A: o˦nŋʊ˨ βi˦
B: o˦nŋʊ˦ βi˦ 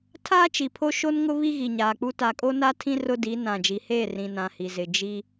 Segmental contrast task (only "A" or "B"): B